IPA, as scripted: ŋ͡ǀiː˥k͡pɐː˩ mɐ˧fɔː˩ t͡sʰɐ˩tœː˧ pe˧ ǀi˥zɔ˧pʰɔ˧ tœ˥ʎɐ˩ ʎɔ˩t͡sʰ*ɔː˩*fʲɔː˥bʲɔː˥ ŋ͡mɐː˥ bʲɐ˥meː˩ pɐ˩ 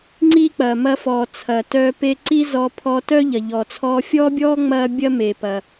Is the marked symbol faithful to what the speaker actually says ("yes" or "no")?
no